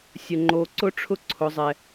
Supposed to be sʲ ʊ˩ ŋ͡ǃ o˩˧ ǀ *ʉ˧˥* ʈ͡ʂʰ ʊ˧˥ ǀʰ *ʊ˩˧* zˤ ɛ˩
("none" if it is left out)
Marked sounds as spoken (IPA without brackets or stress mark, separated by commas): ʊ˧˥, ʊ˩˧